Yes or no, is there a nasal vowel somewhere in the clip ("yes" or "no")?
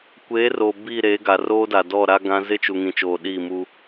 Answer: yes